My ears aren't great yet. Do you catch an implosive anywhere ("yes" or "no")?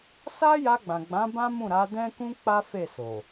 no